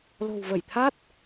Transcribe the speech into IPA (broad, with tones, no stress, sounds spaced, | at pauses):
l o̤˨˩ w v ə˧˩ j t̪ʰ a˦˥ t̚